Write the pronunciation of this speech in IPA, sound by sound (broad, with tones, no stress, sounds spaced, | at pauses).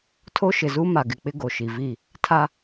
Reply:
tʰ o˦ ʃ ɪ˨ z u˦ m a˨ ɡ ɪ˨ k͡p ɪ˦ ɡ o˨ ʃ i˨ v i˦˨ | tʰ a˦